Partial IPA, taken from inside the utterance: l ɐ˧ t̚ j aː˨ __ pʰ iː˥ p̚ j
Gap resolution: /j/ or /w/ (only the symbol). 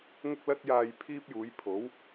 j